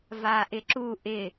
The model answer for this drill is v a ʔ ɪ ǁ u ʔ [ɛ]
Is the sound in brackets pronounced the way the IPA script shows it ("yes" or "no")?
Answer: no